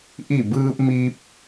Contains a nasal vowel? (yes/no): no